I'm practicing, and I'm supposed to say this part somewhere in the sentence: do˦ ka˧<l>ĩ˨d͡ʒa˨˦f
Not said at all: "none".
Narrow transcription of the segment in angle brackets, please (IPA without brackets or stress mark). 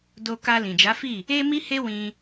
l